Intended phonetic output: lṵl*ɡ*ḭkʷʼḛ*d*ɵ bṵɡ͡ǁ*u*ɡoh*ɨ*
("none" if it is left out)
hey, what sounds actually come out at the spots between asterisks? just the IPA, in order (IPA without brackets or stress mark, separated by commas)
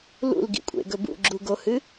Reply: ɡ, ɡ, u, ɨ